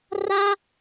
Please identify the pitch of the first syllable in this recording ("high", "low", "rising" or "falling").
high